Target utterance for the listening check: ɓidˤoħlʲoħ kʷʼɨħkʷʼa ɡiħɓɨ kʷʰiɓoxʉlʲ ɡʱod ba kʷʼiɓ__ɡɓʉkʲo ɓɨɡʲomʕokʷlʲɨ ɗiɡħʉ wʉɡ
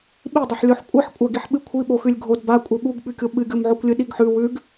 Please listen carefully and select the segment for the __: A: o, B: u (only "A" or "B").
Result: B